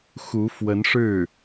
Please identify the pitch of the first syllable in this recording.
rising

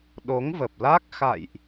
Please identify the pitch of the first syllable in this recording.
rising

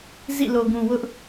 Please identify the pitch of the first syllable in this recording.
falling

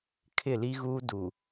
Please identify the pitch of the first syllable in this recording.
falling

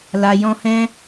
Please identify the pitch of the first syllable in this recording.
low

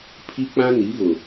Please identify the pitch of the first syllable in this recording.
high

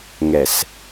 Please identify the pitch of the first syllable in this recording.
low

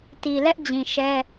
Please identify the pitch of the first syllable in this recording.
low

